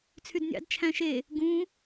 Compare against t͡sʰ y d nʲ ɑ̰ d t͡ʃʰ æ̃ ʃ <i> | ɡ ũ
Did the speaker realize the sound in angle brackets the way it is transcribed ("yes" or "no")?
no